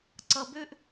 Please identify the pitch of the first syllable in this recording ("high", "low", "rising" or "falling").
low